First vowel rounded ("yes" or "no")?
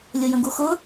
yes